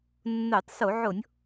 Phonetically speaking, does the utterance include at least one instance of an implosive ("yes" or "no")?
no